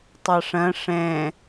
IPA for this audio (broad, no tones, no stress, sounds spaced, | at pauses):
tˤ ɑ ʂ ɐ̃ ʂ ɛ̃